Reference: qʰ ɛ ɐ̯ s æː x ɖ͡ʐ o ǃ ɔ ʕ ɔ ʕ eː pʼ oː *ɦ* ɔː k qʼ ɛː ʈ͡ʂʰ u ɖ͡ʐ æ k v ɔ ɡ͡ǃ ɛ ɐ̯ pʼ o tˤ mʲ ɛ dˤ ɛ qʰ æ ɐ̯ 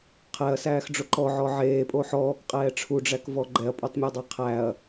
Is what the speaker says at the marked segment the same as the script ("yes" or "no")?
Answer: no